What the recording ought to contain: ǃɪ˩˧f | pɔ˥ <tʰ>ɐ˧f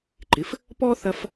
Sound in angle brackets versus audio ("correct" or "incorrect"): incorrect